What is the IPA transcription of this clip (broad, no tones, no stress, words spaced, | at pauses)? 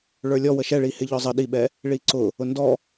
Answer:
ɭə˞lʲɔ wəʃɛɭihɪ ʎɔzˤə ɗiɓɛ | ɭiǀʊ | ʊndɔ